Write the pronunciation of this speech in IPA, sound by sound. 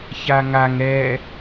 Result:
ç a ŋ a ŋ ɾ ɛ

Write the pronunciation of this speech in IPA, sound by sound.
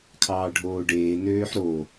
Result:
kʰ ɑː ɖʱ oː ɖ eː n øː ħ ɾ o

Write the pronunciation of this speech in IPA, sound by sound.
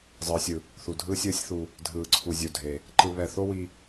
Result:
zˤ ɯː˨ sʲ ɯ˨ | θ u˨ dʱ ɯː˦ sʲ ɯː˦ sʲ θ u˧ | dʱ ɯː˧ ǀʰ u˧ zʲ u˨ dʱ e˨ | ǃ ɯ˧ β ɛ˧ θ o˦ w i˧

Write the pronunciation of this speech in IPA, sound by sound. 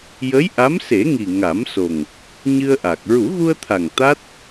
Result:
j ə˧˥ j ʔ a˧˥ m s e˨˩˦ ŋ i˨˩ ŋ a˨˩˦ m s o˨˩ ŋ | ɲ ɨ˧ ə̯ ʔ a˨˩ k̚ ɹ u˨˩˦ ɣ u˧ ə̯ t̪ʰ a˨˩ ŋ t̪ a˦˥ t̚

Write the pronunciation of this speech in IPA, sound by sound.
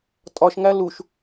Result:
tʼ ɒ ʃ ŋ æ l u ʃ

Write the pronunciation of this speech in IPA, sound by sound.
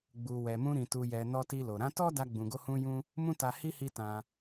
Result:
ɡ͡b u˨ w ɛ˨ m ũ˧ ɾ ĩ˨ t u˨ j ɛ˨ n ɔ˧ t i˧ l o˨ ɾ ã˨˦ t ɔ˦ d a˧ ɡ͡b ũ˨ ɡ o˧ h ũ˧ j ũ˧ | m ũ˦ t a˧ h i˦ h i˦ t ã˧

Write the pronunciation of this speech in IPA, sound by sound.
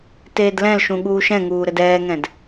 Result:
t eː d l ɛ̃ l ʃ ũ ɠ uː ʃ ɛ̃ ŋ uː ɾ ɘ d ɛː ŋ ɛ̃ d

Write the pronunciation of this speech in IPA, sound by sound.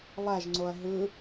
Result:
lˠ æ ʒ ŋ͡ǀ o ɐ̯ ɦ ɯ

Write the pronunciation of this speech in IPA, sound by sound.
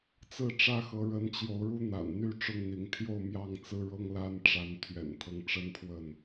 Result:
t͡s ɹ̩˥˨ ʈ͡ʂ ä˦ x ɤ˨˦ ɻ ə˨˦ n t͡ɕ j o˨˦ ʊ̯ ɻ u˦ n̪ a̰˨˩ n n̪ y˥˨ ʈ͡ʂ ʊ˦ ŋ n̪ i˨˦ ŋ t̪ʰ j o˥˨ ʊ̯ m j ɑ˥˨ ŋ t͡s ɹ̩˦ ɻ ɤ˦ ŋ l a˦ n ʈ͡ʂ a˨˦ n t̪ʰ ɥ ɛ̰˨˩ n t̪ʰ ɤ˦ ŋ ʈ͡ʂ ə˦ n pʰ w ə˥˨ n

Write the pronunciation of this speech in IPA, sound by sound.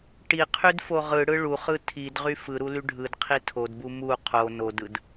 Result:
ʈ i qʰ y d f o ʁ ɯ ɽ ɯ ɭ u χ ɯ tʰ i d ʁ y f ɯ ɾ u l y ɖʱ ɯ d qʰ i tʰ o d b u m u qʰ o n o d ɯ d

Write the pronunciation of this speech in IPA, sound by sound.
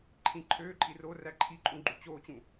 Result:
ǃʰ ĩ ǃʰ øː ǃʼ i r o r æ ǃʰ i ǃʼ ũ ɡ͡ǃ u t͡ɕ oː t͡ɕ ũ

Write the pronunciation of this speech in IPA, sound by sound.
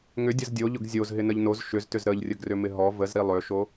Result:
ŋ ʏ dʲ ə z dʲ o ʎ ʊ ɡ zʲ o z ɦ ɪ n ə ʎ n o z ʃ ʏ z t ʏ z ɾ ə ʎ rʲ ə ɡ r ʏ m ɪ ɦ ɔ v ə z ɾ i lˠ ʏ ʃ o

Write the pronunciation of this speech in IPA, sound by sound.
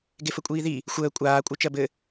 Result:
ɡ e f ə kʷʼ iː ð i | xʷ əː kʷʼ aː kʷʼ ɜ t͡ʃ ɜ b ɘ

